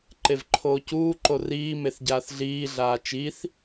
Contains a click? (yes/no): yes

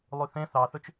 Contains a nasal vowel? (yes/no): yes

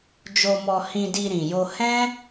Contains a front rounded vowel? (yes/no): no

